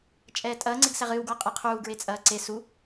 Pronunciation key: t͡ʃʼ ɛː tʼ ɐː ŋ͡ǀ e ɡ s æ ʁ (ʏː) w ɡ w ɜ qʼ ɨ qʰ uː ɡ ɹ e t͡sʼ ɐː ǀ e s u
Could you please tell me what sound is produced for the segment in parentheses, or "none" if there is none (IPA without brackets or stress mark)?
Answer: ɨː